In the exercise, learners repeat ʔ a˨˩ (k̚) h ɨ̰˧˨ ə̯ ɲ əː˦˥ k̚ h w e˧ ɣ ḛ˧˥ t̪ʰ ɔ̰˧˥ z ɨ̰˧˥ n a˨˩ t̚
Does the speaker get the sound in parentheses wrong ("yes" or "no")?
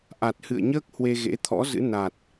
yes